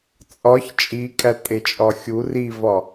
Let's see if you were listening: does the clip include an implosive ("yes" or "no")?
no